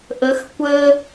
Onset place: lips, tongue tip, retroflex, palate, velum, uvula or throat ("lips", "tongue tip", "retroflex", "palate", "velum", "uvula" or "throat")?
throat